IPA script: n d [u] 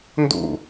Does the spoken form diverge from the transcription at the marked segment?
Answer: yes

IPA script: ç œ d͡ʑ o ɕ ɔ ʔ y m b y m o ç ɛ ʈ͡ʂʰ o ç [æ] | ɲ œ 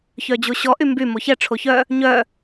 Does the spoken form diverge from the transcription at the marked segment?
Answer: yes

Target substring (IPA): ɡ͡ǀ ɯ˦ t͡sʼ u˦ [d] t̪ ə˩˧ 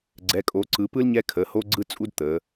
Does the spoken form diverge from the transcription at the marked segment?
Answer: no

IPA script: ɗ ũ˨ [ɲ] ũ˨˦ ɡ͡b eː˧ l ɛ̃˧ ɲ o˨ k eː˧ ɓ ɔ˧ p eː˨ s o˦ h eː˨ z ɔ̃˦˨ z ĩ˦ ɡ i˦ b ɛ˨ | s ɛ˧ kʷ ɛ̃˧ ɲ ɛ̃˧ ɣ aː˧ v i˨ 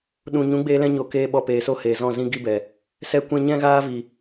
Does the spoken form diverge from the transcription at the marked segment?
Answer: no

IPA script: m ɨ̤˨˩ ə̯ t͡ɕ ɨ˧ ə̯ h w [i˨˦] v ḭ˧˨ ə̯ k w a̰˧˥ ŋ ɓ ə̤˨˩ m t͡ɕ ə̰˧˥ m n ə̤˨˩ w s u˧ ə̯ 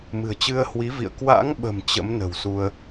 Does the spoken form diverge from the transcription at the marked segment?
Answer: no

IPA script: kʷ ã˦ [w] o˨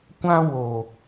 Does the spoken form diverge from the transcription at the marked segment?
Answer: no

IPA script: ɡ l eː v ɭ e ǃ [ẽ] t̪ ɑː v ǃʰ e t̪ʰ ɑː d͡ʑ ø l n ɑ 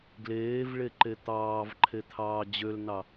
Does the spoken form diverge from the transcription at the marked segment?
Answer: yes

